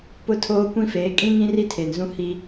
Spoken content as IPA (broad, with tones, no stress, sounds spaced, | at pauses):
p ʊ˦ tʰ oː˦ kʷ ĩ˦ f eː˨˦ kʼ ĩ˦ ŋ ĩ˦ r i˦ tʰ e˨ n z ũ˦ h i˦